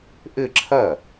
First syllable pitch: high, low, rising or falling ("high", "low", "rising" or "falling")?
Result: falling